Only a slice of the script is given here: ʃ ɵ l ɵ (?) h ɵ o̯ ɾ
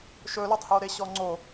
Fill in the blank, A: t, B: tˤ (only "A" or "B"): B